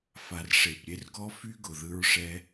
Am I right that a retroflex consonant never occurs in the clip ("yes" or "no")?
no